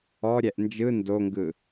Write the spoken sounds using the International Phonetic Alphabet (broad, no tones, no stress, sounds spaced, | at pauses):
ɔ ɾʲ ɛ ʔ n d͡ʒ ɯ n d o ŋ ɡ ɯ